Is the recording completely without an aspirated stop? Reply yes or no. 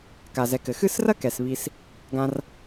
yes